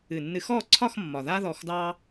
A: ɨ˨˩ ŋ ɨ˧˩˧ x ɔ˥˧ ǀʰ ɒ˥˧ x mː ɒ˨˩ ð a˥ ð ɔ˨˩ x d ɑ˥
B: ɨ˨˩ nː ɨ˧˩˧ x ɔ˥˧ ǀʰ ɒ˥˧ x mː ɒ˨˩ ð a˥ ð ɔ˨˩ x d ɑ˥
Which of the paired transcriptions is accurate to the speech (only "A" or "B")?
B